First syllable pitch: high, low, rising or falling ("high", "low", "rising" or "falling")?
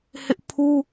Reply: high